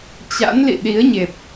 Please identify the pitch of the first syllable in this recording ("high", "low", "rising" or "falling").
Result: rising